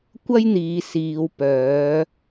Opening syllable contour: high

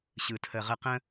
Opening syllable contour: low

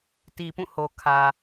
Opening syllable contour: low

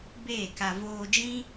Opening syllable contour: falling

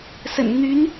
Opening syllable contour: low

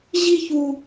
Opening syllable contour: high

